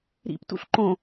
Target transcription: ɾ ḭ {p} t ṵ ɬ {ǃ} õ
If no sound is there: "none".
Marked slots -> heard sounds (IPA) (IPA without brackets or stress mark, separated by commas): p, ǃ